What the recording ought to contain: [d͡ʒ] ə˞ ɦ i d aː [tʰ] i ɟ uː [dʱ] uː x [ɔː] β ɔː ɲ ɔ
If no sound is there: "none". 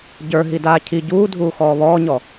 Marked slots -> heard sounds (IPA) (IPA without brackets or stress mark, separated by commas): ɟ, cʰ, dʱ, ɔː